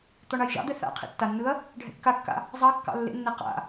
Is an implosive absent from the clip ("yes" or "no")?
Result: yes